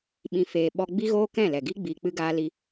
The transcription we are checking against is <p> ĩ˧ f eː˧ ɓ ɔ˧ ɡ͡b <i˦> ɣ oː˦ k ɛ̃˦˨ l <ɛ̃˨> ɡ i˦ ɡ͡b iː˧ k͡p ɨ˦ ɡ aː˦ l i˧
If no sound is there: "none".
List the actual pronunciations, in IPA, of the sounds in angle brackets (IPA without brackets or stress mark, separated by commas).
ɓ, i˦, ɛ˨